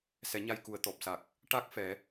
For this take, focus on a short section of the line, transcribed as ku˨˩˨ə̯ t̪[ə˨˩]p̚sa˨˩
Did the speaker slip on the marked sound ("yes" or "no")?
yes